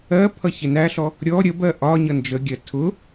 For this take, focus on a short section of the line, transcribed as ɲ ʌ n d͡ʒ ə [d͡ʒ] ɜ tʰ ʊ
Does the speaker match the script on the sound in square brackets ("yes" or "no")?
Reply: no